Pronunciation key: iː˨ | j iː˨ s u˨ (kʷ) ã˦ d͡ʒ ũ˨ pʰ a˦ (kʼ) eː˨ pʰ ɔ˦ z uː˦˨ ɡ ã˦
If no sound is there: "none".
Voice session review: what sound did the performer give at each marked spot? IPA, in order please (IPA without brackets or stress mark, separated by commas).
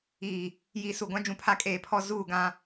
ɡʷ, kʼ